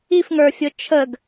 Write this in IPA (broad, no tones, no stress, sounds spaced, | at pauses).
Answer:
i f ŋ ə˞ fʲ ʊ t͡ʃʰ ə ɡ